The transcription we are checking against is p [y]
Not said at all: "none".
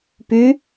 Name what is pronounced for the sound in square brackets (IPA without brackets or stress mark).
y